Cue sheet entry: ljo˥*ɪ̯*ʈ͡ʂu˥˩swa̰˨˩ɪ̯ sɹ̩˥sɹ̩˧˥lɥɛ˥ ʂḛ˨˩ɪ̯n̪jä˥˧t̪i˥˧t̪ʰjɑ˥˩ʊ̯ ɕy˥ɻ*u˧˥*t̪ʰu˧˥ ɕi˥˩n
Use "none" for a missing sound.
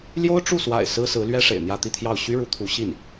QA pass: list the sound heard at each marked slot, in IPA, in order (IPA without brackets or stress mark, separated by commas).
ʊ̯, u˧˥